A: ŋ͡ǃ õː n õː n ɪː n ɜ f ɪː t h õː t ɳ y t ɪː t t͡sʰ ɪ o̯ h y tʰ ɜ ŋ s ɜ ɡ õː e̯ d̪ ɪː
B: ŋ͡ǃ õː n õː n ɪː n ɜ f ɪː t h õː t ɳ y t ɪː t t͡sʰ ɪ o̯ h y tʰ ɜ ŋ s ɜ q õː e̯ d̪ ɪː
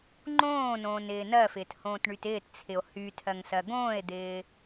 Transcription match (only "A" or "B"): A